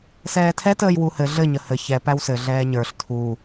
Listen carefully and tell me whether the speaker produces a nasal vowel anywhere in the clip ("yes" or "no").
no